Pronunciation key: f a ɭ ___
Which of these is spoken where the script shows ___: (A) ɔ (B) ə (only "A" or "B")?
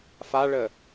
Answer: B